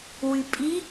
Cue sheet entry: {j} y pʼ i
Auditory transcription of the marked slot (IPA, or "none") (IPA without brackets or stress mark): w